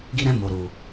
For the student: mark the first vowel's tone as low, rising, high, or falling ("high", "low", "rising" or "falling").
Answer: high